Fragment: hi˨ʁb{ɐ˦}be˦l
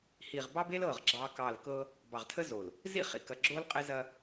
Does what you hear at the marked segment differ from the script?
yes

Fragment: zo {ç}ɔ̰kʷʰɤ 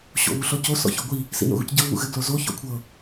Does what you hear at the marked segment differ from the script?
no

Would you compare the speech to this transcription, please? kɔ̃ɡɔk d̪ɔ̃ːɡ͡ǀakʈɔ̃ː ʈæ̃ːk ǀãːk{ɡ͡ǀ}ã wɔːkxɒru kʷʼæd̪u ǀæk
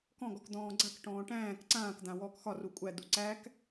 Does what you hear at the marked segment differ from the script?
yes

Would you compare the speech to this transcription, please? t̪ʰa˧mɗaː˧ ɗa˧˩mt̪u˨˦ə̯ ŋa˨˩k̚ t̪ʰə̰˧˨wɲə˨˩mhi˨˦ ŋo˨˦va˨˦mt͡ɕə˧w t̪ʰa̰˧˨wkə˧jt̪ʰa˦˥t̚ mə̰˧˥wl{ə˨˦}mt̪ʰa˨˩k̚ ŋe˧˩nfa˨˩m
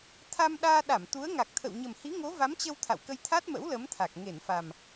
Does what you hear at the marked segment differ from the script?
no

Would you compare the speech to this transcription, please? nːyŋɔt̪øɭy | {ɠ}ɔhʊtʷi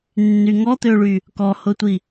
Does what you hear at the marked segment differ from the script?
yes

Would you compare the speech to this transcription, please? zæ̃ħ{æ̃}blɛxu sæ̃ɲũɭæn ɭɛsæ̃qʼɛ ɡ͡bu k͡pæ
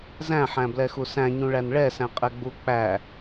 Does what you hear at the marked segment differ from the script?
no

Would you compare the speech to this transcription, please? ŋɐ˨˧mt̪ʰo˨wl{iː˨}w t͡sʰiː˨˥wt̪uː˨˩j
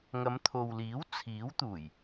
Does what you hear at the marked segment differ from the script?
yes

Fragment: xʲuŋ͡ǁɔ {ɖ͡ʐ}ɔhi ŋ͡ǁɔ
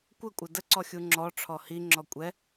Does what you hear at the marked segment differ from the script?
yes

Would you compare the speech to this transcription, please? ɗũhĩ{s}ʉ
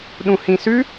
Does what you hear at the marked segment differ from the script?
no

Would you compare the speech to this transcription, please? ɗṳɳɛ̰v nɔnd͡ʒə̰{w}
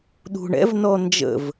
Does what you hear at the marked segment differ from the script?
yes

